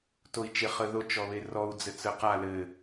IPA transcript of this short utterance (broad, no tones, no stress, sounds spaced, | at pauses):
t o i̯ t͡ʃ e χ ə ð o t͡ʃ ɔ β e r ɔ u̯ d͡z ɘ t͡s ə q a l ɘ